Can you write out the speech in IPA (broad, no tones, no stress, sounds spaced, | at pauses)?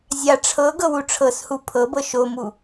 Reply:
zʲ a ʈ͡ʂʰ ɤ ɡ ɤ w u ʈ͡ʂʰ ɤ s h u pʰ ɤ b ɤ ʃ o m u